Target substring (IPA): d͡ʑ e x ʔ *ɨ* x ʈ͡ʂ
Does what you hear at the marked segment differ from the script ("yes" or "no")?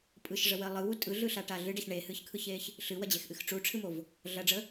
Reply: no